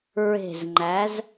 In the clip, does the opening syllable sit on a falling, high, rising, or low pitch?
low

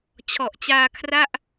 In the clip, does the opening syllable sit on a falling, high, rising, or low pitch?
low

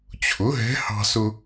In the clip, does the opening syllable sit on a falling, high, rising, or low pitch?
rising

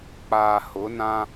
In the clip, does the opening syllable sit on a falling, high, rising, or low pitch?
low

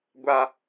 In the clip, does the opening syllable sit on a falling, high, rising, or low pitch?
high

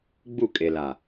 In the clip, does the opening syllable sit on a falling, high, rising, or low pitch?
falling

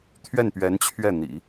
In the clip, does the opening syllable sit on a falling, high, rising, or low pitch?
falling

